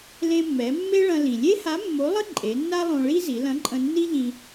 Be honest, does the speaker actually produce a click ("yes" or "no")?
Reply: yes